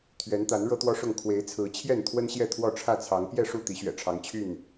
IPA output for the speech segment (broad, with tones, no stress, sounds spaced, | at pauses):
t̪ʰ ɥ ɛ˨˦ n t̪ a˨˦ n ɻ ɤ˦ t̪ w ɔ˦ ʂ ʊ˥˨ ŋ kʰ w e˨˦ ɪ̯ t͡sʰ ɹ̩˨˦ t͡ɕʰ j ɛ˥˨ n t̪ʰ w ə˦ n ɕ j ɛ˥˨ t̪ʰ w ɔ˥˨ ʈ͡ʂʰ ä˥˨ t͡sʰ ɑ˨˦ ŋ p j ɛ˥˨ ʂ u˥˨ t̪ i˨˦ ɕ ɥ ɛ̰˨˩ ʈ͡ʂʰ ɑ˨˦ ŋ t͡ɕʰ y˥˨ n